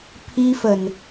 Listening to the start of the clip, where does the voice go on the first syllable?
high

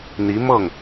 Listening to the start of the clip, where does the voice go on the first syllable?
rising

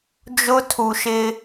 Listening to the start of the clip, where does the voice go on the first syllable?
high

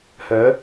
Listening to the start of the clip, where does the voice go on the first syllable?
rising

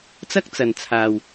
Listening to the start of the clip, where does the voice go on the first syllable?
high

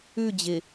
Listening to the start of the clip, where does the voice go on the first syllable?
falling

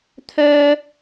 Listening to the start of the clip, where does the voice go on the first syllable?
high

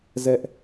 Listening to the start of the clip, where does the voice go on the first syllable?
high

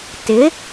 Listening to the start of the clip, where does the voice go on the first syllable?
rising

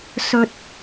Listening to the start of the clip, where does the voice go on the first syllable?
low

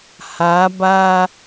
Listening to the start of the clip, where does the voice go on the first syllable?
rising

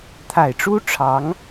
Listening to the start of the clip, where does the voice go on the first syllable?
low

